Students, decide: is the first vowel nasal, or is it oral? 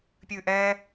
oral